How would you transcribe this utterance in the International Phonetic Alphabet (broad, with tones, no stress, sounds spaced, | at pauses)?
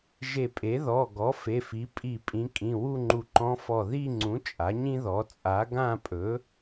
ʒ e˧˩ pʼ e˩˥ ð ɔ˩˧˩ ɡ ɔ˩˥ f e˩˧˩ f i˩˥ pʼ i˧˩ pʼ ĩ˩˥ kʼ ĩ˩˧˩ w u˥˧ ŋ͡ǃ u˧˩ ǃ ɔ̃˧˥ f ɔ˧˩ ð i˥˧ ŋ͡ǀ ũ˩˥ t͡ʃʼ a˩˥ ɲ ĩ˥ ð ɔ˩˥ t͡sʼ a˩˥ ɡ ã˥˧ pʼ ɵ˩˥